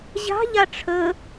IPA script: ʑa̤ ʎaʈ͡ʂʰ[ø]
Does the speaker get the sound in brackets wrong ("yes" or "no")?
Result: yes